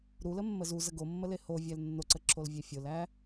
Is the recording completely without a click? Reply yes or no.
no